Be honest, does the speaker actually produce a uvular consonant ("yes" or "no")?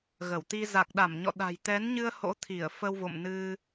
no